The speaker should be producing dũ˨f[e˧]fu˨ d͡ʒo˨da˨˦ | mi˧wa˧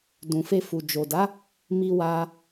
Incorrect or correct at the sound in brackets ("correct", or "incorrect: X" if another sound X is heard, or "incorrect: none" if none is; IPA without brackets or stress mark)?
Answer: correct